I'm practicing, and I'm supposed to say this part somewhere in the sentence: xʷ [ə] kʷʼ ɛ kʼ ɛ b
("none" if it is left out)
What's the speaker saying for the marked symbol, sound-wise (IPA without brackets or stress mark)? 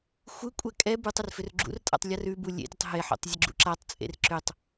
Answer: ɯ